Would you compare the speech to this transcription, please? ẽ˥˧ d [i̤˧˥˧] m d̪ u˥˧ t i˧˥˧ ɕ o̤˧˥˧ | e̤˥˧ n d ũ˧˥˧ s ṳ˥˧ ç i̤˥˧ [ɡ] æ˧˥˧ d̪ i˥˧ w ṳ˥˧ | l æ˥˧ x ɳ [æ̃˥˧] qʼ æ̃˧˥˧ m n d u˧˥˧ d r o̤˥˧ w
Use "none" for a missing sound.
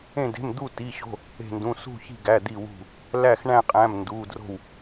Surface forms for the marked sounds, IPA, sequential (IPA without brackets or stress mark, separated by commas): e̤˧˥˧, ɡ, æ̃˥˧